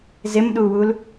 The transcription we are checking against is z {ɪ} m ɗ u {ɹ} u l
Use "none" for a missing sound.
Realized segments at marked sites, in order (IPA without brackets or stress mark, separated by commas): ɪ, w